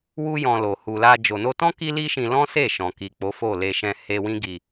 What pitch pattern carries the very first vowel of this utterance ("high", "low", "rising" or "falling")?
high